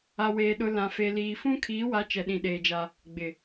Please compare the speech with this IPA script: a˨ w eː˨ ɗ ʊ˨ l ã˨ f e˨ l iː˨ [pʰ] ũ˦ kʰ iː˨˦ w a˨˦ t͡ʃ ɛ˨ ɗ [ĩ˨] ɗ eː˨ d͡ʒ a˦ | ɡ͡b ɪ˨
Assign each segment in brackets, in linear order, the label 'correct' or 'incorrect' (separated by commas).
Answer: incorrect, correct